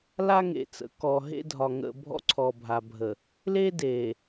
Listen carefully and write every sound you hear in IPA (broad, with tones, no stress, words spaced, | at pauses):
la˦ŋḛ˨t͡sə̰˨ kɔ˨ɦḛ˦dʱɒ˨ ŋə̰˨ bʱɔ̰˦ǀʰɔ˨bʱa˨bʱə˨ | le˦de˨